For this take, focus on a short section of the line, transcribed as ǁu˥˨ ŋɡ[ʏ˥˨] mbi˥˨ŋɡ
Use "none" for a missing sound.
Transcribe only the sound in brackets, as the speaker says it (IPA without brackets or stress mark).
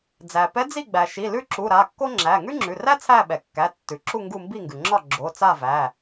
u˥˨